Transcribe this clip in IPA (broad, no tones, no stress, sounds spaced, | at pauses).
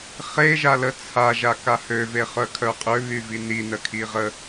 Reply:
χ e ʒ a l ə t͡sʰ a ʒ a k a h ø v e χ œ kʰ œ qʼ ø β y v i n i n ə kʰ i ʁ ə